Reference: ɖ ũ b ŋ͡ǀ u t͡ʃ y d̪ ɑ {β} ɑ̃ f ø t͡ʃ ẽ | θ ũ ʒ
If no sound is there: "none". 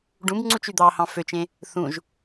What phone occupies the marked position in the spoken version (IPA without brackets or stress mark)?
h